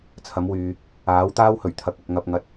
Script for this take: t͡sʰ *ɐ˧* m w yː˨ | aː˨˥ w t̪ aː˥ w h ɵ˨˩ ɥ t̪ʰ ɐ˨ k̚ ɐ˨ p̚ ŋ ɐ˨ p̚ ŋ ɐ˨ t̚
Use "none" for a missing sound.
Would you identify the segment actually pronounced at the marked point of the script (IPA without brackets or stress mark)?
ɐ˨˥